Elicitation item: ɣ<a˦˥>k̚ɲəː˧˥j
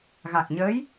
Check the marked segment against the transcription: incorrect: a˨˩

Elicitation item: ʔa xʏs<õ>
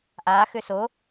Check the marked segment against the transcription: incorrect: o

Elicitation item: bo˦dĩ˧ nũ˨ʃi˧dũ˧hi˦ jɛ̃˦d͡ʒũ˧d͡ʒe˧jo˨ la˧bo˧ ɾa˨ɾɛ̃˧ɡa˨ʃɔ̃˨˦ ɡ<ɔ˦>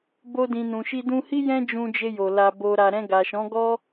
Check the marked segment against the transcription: correct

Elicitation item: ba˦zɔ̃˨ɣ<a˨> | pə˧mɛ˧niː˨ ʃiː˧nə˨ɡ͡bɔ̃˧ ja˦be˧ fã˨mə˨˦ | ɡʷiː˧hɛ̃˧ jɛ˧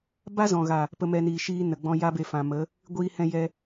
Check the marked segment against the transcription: correct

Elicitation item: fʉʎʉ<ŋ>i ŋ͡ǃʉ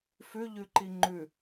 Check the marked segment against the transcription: incorrect: ǃ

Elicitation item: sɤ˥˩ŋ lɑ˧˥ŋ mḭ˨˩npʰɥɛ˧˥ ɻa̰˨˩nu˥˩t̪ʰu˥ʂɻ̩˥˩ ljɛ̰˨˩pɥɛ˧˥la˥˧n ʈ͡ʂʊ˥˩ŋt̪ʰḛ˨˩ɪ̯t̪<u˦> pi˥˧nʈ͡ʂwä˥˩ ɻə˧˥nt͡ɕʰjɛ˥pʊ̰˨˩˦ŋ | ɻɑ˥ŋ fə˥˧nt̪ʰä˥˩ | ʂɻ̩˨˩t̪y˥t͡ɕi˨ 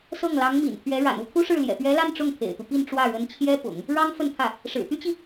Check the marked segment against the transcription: correct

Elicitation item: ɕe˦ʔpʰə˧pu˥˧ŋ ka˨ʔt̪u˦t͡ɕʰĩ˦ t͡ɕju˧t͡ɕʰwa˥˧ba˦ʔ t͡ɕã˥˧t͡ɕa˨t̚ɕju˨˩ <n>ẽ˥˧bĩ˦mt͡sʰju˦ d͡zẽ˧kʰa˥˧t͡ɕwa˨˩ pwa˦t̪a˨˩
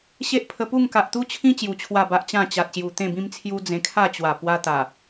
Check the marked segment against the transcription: incorrect: t̪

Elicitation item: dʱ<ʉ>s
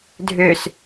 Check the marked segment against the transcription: incorrect: ø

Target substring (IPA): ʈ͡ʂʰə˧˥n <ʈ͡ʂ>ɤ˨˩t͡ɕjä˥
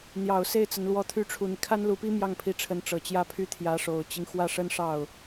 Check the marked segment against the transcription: correct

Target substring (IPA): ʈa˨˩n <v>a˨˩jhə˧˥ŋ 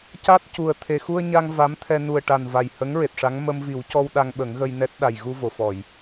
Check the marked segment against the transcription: correct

